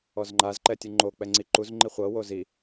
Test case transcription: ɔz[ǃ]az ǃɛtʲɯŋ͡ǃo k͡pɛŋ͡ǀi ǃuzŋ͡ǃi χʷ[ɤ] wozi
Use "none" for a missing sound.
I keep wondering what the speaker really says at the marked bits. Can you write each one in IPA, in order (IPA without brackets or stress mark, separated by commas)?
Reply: ŋ͡ǃ, ɤ